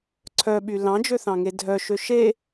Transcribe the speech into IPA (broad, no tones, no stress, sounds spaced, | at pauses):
ǀʰ œ ɓ y l ɑ̃ d͡ʒ ø θ ɑ̃ ŋ e dʱ œ ʃ ø ʃ e